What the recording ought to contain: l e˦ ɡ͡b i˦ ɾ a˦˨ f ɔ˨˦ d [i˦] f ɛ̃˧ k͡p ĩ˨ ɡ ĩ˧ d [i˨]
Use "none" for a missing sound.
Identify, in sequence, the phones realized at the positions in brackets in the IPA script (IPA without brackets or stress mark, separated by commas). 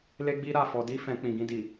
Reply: i˦, i˨